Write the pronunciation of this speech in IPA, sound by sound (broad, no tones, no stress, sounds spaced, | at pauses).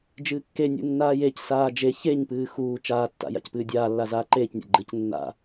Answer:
d͡ʒ ɨː kː e nʲ ṵ nː aː j e c s aː d͡ʒ e ç e ɲ p ɨː x uː t͡ʃ aː tː a̰ j a̰ c p ɨː dʲ aː lː a z aː ǃ eː c nʲ a̰ ɡ͡ǃ ɨ c nː a̰